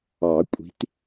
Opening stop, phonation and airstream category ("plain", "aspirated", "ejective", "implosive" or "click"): ejective